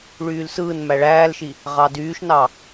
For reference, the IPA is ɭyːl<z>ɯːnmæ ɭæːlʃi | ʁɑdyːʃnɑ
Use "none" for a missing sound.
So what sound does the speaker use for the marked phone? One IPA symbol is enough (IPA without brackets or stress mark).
s